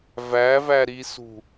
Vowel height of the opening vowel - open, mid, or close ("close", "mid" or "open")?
open